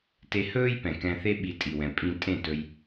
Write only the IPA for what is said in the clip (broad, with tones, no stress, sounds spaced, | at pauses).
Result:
t e˧ h ɵː˦ j p ɛ̃˨ k ɛ̃˧ θ e˦ ɓ i˧ tʼ i˨ w ɛ̃˨ pʼ ĩ˧ tʼ ẽ˦˨ t ɵ˧ j